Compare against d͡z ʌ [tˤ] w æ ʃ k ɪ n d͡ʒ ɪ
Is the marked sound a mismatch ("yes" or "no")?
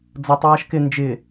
no